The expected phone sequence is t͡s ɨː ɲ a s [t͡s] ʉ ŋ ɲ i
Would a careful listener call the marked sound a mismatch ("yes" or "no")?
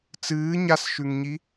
yes